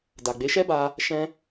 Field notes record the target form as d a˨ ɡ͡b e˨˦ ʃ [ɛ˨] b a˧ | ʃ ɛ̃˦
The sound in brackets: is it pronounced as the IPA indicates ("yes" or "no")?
no